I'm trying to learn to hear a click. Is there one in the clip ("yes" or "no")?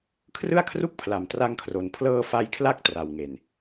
no